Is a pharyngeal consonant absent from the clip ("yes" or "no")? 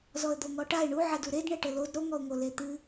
no